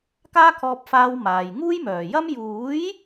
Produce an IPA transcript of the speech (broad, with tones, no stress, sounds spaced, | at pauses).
k aː˥ kʰ ɔː˧ p̚ f aː˧ w m aː˨ j ŋ uː˥ j m œː˨˩ j ɐ˥ m j uː˨˥ j